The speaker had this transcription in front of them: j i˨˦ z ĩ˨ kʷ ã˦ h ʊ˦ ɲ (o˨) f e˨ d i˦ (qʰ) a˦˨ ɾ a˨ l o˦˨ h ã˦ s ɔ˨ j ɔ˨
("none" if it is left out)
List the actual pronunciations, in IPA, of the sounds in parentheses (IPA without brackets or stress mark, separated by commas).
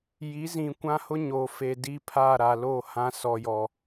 o˨, pʰ